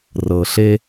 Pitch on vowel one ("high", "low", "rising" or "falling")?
low